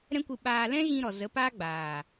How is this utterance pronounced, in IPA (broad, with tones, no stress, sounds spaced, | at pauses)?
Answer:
ɾ ɛ̃˦ kʷ ɨ˧ ɓ aː˧ l ɛ̃˦ ɣ ĩ˧ ɾ ɔ˨ z ə˨˦ p aː˦ ɡ͡b aː˨